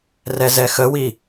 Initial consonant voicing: voiced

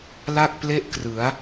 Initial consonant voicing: voiced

